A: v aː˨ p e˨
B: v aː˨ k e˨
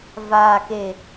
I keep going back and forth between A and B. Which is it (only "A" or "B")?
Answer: B